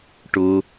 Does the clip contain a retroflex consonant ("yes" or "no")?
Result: yes